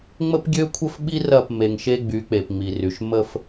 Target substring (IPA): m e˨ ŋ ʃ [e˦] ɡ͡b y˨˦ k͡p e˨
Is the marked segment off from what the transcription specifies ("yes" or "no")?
no